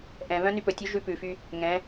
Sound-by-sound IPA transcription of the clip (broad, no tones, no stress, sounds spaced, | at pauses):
ʔ ɛ̃ β œ̃ n y p ɵ tʲ u ʒ ʉ p ʉ f y | ŋ ɛ̃